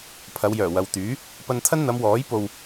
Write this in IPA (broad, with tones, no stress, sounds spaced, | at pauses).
pʰ ɐ˨˧ w j œː˨˩ w ɐ˨ w t̪ yː˨˥ | p ɐ˧ n t̪ʰ ɐ˥ n n̪ ɐ˨˧ m w ɔː˨˥ j p o˧ w